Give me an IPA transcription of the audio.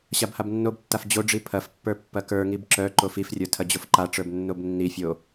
ɕ a b h a b nː o b tː a f d͡ʑ o ɖ͡ʐ i pʰ ɐ f pː ə˞ pː ɐ k ə˞ ŋ i b ǁ œ ǃ o f i f rʲ ə˞ tʰ ɐ d͡ʑ o f ǃ a ʈ͡ʂ ə˞ b nː o b nː i fʲ o

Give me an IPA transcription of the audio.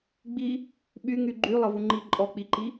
ɡ͡b i | ɓ y ŋ y ɡ͡ǃ y lˠ ə v u ŋ͡ǃ i ǃʼ ɔ k͡p i ǃ i

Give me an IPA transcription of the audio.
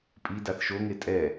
pʼ i d a θ ʃ o ŋ e tʼ ɛ

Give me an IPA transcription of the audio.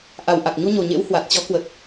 ʔ a˨˩ w ʔ a˨˩ k̚ ɲ u˧ ɲ o˨˩ ɲ ḛ˧˥ w h w a˨˩ t̚ t͡ɕ ɔ˨˦ k w ə˨˩ t̚

